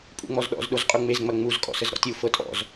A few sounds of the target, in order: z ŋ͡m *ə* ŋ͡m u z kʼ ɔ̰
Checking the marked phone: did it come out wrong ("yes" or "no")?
yes